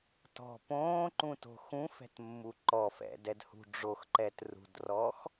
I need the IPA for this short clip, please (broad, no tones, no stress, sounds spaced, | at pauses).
t ɔ̤ p õː ǃ ũ t o̤ x ũ f ɛ̤ t mː u ǃ ɔ f ɛ̰ d ɛ d h ṳ ɖ͡ʐ o x ǃ ɛ t r ṳ d r ɔ x